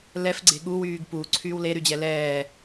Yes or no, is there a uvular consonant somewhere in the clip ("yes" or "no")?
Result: no